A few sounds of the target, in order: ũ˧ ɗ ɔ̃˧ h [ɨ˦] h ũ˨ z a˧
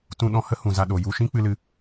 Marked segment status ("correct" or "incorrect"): incorrect